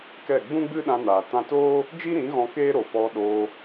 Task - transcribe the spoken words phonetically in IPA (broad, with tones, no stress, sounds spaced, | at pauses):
k ɛ˦˨ ɡ͡b ũ˦ ɡ͡b ɨ˦ ɗ ã˧ n aː˨ t ã˧ t oː˦ | d͡ʒ i˦ ɾ ĩ˨˦ ɣ ɔ̃˧ k eː˦ ɾ o˨ p ɔ˧ ɗ oː˧